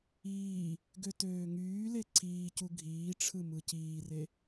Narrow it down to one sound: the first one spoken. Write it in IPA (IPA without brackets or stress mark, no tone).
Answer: iː